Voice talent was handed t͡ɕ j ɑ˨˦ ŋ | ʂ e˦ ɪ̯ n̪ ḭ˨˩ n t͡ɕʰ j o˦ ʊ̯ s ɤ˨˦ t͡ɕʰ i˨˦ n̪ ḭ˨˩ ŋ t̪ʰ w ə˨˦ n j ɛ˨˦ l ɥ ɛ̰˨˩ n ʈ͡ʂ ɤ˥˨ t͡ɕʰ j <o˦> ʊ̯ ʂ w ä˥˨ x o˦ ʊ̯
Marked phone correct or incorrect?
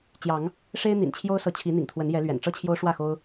correct